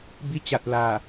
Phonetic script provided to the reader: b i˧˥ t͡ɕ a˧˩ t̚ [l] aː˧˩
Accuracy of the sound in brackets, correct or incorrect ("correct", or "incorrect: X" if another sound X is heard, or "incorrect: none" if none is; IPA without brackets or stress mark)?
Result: correct